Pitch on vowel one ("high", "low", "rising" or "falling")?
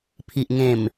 low